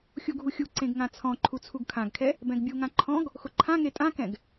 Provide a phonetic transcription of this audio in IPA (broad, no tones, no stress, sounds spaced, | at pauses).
xʲ u ɡʱ u xʲ u ǀ ẽ ɡ ŋ ã t͡sʰ ɔ̃ ǃʰ u t͡sʰ u ɡ kʰ ã ɡ kʰ ɛ | b ɛ̃ ɡ bʲ u ŋ ã ǃʰ ɔ̃ ɡ | x ʊ ǃʰ ã ŋ e tʼ ã k ɛ̃ ɡ